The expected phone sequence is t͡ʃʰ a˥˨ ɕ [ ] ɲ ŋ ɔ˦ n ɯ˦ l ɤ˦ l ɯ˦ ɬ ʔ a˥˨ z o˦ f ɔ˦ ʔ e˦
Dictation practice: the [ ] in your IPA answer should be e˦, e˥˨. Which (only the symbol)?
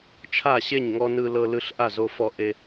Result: e˥˨